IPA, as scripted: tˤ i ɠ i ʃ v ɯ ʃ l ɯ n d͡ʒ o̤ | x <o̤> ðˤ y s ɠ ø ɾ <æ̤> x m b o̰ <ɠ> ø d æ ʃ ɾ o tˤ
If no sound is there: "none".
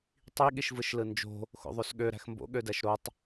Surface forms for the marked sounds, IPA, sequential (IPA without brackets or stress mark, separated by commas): o̰, æ̤, ɠ